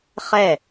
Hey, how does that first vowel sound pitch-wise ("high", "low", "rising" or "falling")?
falling